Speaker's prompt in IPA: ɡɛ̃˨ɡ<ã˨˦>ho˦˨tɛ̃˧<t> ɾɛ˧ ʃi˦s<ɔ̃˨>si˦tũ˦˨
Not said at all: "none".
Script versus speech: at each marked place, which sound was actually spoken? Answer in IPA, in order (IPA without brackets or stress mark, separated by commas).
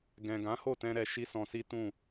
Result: ã˨˦, none, ɔ̃˧